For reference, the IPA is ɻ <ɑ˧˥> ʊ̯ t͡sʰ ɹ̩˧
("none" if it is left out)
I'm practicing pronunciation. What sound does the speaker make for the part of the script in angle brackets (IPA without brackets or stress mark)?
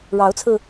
ɑ˧˥